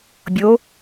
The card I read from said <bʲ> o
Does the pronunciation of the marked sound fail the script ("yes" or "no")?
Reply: no